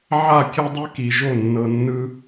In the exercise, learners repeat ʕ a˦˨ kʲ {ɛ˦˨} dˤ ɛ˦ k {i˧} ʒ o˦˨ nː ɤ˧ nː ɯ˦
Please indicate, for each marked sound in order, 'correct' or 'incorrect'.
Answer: incorrect, incorrect

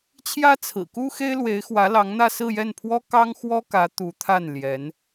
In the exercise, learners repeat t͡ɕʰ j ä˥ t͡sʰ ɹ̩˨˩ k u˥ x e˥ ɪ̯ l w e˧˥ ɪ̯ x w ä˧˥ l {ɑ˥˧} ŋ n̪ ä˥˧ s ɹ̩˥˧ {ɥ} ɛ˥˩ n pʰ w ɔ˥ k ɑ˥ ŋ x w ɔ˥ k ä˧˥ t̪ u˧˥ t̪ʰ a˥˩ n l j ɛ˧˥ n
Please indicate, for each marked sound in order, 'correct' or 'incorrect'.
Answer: incorrect, incorrect

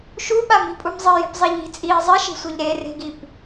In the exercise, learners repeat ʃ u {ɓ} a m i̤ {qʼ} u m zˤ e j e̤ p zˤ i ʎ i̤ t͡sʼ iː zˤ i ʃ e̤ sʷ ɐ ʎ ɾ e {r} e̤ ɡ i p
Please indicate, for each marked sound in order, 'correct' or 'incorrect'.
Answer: correct, incorrect, correct

